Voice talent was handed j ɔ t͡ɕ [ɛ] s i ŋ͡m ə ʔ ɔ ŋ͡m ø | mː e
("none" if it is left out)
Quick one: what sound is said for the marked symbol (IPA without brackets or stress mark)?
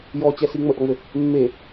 ɛ